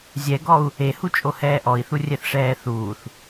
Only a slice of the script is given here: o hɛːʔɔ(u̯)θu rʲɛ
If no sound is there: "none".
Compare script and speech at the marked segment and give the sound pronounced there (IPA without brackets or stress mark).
i̯